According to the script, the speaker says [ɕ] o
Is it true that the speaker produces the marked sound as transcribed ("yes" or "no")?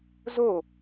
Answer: no